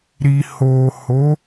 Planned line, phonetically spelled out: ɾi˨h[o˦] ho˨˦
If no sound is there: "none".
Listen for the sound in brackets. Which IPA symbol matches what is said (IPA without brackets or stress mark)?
o˨